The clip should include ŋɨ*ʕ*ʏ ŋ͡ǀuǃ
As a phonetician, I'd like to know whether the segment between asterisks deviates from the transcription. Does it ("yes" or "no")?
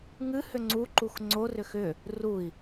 yes